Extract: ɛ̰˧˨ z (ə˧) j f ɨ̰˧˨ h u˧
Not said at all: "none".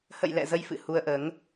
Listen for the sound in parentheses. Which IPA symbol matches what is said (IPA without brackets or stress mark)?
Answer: ə˧